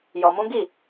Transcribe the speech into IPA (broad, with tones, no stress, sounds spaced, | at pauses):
j ɔ˧ m ũ˦ ɡ i˦˨